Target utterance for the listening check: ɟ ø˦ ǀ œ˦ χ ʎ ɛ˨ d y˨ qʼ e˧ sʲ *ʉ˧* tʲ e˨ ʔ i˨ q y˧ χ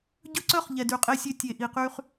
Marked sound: incorrect: ø˧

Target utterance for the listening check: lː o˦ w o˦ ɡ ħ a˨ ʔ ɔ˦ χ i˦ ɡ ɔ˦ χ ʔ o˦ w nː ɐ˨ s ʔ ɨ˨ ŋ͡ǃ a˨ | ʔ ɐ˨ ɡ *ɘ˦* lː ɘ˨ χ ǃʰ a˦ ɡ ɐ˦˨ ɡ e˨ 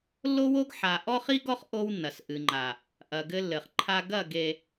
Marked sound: correct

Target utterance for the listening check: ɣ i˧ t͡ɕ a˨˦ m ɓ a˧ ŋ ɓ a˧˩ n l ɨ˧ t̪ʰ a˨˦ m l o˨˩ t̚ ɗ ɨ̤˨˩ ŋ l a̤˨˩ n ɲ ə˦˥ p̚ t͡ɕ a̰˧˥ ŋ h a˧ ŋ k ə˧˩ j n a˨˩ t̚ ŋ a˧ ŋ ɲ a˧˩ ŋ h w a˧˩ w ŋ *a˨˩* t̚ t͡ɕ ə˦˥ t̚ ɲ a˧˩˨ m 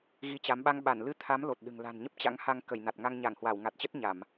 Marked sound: correct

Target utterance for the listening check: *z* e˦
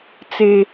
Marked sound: incorrect: t͡s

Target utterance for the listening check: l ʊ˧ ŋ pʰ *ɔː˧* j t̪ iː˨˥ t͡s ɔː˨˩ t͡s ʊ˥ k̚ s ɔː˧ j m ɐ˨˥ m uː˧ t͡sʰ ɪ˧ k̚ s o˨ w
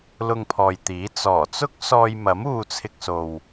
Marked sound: incorrect: ɔː˨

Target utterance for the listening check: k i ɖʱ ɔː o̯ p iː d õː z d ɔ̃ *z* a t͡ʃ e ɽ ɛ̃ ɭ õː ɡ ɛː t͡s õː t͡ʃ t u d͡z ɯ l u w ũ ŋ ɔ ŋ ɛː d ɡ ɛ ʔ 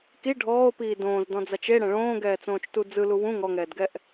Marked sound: incorrect: d͡z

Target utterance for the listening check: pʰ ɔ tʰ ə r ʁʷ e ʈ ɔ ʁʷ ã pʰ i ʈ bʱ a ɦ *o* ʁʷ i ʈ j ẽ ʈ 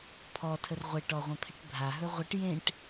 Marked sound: incorrect: ɵ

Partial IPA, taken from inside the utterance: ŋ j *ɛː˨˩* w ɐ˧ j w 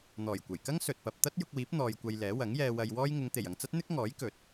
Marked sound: incorrect: ɛː˧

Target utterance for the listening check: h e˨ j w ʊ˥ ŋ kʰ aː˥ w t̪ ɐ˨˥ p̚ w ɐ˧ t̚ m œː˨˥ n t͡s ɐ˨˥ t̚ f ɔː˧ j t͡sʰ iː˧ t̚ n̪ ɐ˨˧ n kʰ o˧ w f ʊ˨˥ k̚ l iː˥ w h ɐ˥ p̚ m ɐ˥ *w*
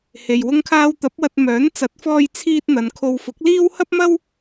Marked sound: correct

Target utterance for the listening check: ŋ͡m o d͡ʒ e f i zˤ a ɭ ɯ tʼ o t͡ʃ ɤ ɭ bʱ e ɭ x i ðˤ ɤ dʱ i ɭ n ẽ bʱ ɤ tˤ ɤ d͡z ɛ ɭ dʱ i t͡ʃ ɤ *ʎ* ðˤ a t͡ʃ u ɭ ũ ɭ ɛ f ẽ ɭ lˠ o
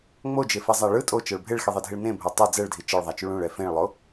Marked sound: incorrect: ɭ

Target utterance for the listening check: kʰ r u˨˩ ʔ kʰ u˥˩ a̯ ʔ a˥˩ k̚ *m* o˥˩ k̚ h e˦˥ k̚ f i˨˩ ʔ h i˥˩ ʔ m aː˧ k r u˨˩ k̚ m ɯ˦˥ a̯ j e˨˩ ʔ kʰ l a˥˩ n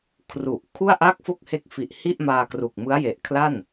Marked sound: incorrect: f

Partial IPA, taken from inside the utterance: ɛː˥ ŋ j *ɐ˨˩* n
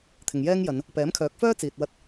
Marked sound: incorrect: ɐ˨˧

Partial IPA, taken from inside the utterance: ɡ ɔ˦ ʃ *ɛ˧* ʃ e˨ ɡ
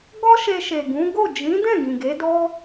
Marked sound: incorrect: e˧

